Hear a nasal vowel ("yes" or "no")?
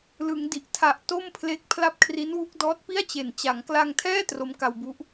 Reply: no